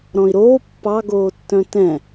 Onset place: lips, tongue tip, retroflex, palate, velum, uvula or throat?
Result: tongue tip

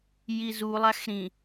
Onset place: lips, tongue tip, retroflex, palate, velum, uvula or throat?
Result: palate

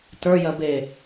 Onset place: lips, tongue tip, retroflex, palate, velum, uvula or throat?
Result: tongue tip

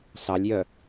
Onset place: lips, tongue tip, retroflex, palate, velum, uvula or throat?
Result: tongue tip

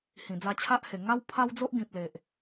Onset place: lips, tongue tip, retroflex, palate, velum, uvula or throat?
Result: throat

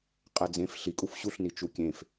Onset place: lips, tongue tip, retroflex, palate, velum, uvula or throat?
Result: uvula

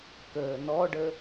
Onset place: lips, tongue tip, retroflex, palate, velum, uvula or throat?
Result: velum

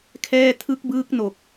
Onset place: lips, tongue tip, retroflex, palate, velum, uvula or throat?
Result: velum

